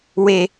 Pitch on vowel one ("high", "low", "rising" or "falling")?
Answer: low